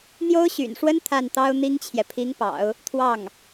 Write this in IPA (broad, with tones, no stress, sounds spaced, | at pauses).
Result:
n̪ j o˥ ʊ̯ ɕ y̰˨˩ n ʂ w ə˥ n t̪ʰ a˥˩ n t̪ ɑ˥ ʊ̯ n̪ i˥ ŋ t͡ɕʰ j ɛ˨ pʰ i˧˥ ŋ p ɑ̰˨˩˦ ʊ̯ | t̪ʰ w ɑ˥˩ ŋ